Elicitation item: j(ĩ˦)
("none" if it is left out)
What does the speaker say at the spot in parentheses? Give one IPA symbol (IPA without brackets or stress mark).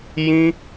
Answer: ĩ˦